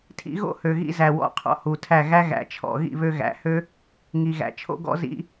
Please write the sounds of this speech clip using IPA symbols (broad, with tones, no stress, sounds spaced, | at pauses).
tʰ ḭ˦ ɣ o̰˦ h ø˨ ɣ ḭ˧ z æ˨ w ɔ̰˧ qʰ ɔ̰˧ h u˨ tʰ æ˦˨ ɣ æ˦ ɣ æ̰˨ t͡ʃʰ ɔ̰˨ ɣ ḭ˦˨ β ø˧ ɣ æ̰˨˦ h ø˦ | ŋ i˨ ɣ æ̰˨ t͡ʃʰ o̰˦ ɡ ɔ̰˦ z ḭ˦